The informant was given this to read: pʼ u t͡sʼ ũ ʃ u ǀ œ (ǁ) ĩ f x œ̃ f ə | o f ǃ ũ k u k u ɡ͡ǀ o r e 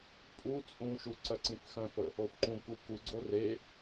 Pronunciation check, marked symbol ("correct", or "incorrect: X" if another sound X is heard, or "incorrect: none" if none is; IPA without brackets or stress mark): incorrect: ǀ